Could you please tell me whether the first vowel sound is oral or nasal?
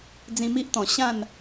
nasal